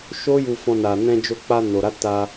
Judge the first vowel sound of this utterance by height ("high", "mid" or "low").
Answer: mid